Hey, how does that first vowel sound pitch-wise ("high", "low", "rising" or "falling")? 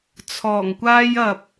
low